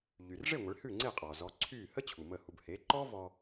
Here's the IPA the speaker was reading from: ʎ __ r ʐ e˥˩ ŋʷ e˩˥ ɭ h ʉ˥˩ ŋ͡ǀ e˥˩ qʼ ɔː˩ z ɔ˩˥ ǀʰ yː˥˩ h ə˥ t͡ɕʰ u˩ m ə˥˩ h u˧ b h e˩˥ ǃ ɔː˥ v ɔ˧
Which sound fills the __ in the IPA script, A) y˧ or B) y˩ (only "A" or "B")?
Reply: B